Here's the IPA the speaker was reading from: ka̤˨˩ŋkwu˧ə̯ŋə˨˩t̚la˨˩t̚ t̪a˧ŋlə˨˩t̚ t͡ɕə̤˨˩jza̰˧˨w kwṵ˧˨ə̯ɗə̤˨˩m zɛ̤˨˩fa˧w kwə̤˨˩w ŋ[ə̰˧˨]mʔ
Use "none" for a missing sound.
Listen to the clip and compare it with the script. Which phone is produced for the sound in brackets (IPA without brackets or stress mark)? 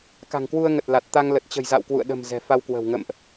ə̰˧˨